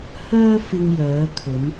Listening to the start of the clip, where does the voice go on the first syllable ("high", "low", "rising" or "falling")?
high